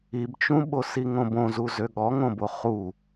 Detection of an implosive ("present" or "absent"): present